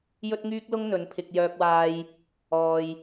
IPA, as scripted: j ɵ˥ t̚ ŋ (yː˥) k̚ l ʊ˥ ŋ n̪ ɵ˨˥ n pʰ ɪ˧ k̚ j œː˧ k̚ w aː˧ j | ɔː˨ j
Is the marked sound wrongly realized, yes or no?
no